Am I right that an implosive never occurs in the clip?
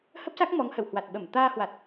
no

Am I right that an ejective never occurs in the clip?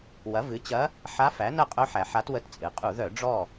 no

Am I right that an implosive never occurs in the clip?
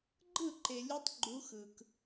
yes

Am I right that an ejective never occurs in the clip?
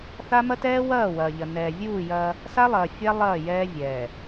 yes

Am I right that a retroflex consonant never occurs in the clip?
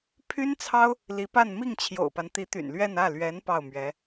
yes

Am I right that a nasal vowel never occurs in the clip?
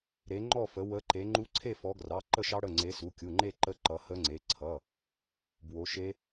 yes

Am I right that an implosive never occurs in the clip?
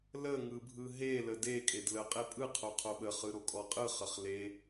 no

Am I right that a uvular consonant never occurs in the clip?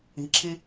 yes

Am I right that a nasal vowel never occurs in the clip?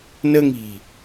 yes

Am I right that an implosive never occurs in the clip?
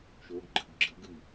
yes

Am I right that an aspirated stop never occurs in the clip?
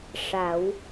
yes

